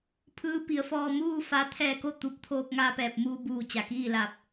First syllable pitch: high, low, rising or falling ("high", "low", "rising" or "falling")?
rising